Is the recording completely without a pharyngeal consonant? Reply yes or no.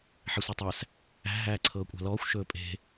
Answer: no